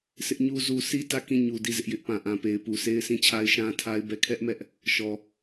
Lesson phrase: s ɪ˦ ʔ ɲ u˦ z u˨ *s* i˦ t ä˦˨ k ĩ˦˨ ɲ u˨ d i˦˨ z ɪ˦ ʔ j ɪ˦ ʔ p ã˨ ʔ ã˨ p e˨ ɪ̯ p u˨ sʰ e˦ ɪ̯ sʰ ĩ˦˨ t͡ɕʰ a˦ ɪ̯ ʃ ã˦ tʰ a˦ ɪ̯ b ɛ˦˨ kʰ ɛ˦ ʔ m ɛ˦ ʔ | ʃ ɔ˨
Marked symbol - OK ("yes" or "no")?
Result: yes